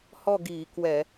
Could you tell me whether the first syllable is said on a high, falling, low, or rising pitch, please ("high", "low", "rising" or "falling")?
falling